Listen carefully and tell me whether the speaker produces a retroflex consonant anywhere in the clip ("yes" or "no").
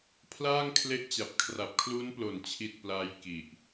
no